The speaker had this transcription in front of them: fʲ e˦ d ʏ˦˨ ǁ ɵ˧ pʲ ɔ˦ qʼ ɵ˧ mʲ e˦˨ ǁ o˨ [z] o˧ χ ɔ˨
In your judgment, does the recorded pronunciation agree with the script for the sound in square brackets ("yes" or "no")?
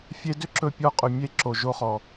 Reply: no